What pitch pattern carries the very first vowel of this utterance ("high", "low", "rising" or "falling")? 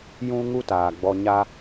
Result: high